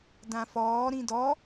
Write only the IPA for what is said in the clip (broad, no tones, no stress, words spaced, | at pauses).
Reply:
dãfɔː ɾĩdɔ